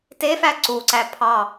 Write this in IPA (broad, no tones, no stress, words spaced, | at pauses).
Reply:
tefæ ǀuǀæ pʰɑ